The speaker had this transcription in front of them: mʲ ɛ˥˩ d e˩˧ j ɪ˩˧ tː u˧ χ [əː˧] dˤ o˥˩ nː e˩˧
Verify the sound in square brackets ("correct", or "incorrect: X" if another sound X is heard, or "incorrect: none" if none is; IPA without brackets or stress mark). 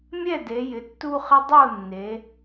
incorrect: ə˧